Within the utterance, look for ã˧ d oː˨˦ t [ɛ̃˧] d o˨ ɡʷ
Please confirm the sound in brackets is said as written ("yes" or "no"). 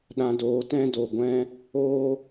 no